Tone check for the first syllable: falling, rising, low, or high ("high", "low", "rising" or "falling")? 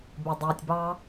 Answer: low